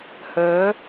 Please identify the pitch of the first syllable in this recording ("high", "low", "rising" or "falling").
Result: rising